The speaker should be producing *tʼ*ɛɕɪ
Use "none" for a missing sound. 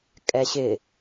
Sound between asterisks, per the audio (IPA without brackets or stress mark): kʼ